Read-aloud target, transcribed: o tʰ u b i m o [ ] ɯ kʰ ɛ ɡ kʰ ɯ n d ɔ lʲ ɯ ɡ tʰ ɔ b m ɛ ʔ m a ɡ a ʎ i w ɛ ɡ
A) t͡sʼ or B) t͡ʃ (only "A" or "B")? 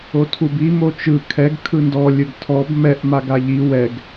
B